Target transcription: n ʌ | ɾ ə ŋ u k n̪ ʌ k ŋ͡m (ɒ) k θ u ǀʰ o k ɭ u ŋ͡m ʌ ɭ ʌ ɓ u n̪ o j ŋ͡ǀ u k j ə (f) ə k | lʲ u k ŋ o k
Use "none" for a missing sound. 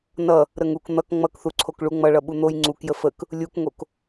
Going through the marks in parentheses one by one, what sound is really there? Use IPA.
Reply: ʌ, f

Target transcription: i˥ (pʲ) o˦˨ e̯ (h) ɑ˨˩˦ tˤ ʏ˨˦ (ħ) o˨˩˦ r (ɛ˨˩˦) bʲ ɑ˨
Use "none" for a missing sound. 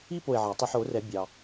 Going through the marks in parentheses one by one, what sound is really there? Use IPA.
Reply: p, ʕ, ħ, ɛ˨˩˦

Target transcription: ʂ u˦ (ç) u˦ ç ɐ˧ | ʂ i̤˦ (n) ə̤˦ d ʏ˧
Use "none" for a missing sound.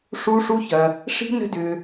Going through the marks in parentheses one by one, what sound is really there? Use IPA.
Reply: ʂ, n

